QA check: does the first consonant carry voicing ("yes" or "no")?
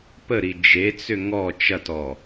no